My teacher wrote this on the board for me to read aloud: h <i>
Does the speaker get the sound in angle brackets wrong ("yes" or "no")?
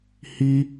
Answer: no